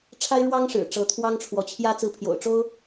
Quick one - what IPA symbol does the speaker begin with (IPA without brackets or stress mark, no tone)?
ʈ͡ʂʰ